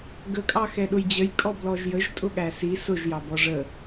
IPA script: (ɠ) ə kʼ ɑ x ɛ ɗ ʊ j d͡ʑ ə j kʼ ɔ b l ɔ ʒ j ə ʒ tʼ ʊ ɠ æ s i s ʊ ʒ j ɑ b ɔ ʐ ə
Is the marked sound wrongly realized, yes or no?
yes